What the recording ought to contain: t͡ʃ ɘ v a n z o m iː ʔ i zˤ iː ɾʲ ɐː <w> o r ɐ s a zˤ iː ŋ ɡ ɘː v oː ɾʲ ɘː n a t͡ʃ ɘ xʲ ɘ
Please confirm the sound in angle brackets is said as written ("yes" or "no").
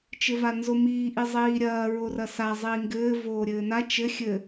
no